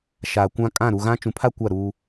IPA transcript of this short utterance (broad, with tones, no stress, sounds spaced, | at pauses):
ʃ aː˨ kʷ ã˦ kʼ ã˦˨ ɾ u˨ ɣ ã˦ t͡ʃ ũ˨ pʰ a˦ kʷ a˦˨ ɾ uː˦